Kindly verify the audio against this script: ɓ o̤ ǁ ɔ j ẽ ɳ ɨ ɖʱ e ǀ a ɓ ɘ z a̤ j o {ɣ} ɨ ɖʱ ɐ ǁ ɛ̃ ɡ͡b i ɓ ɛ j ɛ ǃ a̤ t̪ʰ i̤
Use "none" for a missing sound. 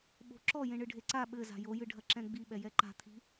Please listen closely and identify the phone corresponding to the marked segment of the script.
j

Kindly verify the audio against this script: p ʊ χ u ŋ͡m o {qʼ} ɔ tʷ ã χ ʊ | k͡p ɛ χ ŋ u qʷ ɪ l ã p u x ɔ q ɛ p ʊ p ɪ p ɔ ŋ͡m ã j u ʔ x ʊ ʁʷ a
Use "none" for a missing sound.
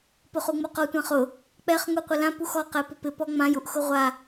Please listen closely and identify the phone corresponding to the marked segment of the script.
q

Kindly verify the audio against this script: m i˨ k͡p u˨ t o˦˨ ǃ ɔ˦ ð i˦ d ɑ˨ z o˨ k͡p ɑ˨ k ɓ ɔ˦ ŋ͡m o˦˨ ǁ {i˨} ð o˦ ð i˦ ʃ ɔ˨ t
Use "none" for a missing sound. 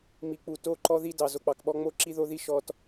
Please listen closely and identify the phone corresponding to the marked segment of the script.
i˦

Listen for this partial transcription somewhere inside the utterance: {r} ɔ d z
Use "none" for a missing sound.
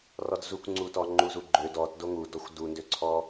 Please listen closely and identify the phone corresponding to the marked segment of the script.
r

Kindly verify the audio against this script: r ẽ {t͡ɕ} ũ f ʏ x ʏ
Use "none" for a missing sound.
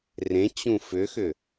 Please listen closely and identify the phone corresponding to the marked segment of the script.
t͡ɕ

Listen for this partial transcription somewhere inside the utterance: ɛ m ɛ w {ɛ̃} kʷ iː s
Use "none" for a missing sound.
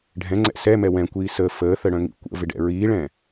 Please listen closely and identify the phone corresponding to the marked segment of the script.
ɛ̃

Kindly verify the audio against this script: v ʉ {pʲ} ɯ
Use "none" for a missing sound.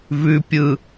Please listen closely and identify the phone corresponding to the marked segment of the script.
pʲ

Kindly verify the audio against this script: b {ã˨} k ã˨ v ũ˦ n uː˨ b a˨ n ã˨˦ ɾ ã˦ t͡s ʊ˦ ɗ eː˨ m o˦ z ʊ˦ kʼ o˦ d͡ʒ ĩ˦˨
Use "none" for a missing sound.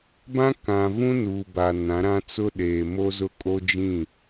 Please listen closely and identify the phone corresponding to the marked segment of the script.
ã˦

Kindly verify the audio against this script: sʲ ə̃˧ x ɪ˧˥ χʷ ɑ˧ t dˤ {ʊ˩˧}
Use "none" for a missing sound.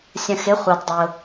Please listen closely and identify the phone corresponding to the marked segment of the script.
ʊ˧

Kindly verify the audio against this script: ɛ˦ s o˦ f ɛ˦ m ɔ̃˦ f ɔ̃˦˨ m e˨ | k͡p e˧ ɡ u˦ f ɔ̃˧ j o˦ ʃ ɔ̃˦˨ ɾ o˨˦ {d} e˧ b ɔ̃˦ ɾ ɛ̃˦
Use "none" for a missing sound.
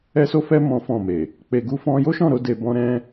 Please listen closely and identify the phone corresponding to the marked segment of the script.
d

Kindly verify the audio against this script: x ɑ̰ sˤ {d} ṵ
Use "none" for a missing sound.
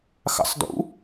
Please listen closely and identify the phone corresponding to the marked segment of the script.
d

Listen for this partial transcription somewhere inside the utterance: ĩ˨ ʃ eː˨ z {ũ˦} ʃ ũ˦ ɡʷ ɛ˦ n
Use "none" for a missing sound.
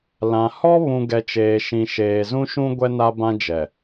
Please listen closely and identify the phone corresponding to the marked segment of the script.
ũ˦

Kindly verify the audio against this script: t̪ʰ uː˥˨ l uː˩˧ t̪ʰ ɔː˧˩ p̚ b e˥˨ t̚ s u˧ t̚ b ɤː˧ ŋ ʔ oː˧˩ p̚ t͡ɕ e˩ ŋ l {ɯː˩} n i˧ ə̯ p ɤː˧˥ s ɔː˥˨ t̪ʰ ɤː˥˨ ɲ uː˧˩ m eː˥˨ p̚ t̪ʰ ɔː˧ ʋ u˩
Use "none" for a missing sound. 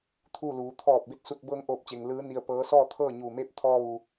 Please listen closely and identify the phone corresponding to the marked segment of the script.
ɯː˧˥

